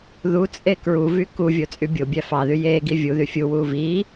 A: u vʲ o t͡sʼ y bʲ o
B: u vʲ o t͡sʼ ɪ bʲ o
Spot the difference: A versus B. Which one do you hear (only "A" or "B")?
A